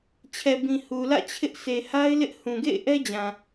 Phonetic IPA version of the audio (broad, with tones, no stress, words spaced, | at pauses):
t͡ɕʰɛ˨bĩ˨ hu˨lä̰˦˨t͡ɕʰɪ˦ʔ se˨ha˦ɪ̯lɪ˦ʔ hũ˨ɡḛ˦˨ɪ̯ʔɛ˦d͡ʑã˨